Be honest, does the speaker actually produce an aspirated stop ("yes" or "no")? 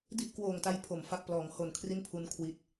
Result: yes